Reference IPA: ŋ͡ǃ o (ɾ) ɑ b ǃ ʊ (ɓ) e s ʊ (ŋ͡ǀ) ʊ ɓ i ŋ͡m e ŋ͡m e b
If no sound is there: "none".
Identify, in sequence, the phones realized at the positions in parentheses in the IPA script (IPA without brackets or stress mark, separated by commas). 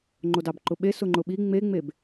d, ɓ, ŋ͡ǃ